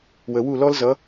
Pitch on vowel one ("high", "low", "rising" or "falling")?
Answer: low